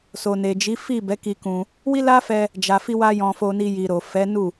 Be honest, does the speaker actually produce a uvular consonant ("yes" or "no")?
no